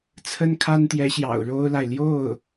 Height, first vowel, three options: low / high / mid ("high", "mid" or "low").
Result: mid